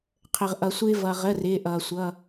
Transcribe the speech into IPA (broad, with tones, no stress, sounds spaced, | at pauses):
qʰ ə˩ ʁ ʔ ʌ˩ sʷ ɪː˧ v ʌ˩ ʁ ə˩˧˩ r ɪː˩˧˩ ʔ ʌː˩ sʷ ʌ˩˧˩